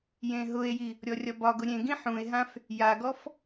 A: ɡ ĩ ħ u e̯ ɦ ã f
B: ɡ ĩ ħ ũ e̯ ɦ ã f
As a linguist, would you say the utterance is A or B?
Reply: B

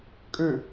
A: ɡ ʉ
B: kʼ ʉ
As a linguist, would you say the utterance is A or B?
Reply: B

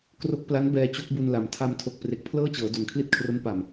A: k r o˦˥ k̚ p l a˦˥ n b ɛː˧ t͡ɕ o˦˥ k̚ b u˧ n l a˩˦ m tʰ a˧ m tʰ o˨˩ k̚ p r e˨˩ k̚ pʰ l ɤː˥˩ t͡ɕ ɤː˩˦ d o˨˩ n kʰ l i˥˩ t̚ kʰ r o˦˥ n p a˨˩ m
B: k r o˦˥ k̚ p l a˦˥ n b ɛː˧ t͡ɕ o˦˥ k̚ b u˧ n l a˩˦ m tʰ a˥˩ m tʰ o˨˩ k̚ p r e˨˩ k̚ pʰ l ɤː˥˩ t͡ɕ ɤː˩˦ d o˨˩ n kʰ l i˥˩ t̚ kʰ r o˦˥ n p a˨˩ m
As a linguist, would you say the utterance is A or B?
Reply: A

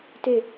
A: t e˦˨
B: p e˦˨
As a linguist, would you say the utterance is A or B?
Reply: A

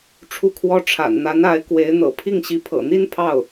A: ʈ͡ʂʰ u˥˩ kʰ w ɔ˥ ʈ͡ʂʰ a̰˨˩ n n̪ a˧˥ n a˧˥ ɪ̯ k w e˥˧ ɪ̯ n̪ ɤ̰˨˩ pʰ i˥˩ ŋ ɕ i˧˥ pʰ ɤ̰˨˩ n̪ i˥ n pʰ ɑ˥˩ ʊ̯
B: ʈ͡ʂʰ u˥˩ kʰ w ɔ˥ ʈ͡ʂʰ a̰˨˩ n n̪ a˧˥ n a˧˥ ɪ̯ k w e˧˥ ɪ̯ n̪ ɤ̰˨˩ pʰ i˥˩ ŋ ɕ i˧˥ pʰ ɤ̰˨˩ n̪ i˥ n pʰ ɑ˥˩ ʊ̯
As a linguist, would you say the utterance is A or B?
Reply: B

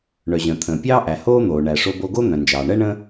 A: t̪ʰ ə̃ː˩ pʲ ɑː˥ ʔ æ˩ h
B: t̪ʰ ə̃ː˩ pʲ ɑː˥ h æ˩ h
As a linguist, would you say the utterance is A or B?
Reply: A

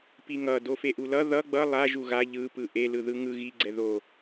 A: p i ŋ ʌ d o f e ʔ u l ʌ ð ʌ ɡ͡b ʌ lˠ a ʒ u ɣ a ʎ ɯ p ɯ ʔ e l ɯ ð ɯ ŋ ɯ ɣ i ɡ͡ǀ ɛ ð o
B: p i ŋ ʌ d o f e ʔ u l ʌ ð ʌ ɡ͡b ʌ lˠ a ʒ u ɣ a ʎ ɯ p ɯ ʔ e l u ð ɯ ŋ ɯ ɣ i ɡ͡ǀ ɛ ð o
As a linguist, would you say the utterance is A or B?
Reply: A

